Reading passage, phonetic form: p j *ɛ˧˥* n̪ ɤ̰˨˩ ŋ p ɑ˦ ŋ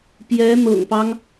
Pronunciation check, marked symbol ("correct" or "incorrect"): correct